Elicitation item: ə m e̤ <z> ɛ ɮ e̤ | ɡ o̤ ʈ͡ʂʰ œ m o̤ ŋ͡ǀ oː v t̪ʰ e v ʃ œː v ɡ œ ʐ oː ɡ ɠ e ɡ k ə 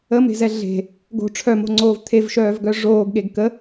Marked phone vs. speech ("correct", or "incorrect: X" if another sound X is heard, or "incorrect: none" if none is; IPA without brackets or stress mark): correct